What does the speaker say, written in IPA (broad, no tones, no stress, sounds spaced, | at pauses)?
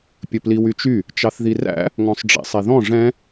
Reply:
pʲ ɵ p l i w y t͡ʃ y | t͡ʃ ɑ θ ð i r æ̰ | ŋ ɔ̃ sˤ ɖ͡ʐ ḭ sˤ i ð ɔ̃ ʐ ɛ̃